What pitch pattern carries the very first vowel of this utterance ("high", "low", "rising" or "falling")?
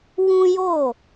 high